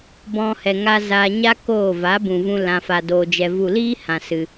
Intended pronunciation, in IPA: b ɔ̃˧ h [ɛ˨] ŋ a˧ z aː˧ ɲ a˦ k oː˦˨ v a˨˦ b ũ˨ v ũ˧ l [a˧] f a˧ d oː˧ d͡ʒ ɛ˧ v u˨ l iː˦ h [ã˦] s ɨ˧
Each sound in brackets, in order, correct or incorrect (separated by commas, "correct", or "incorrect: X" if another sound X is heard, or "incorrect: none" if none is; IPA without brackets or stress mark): correct, incorrect: ã˧, incorrect: ã˧